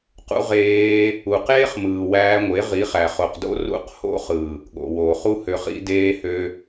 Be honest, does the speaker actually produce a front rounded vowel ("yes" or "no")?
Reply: yes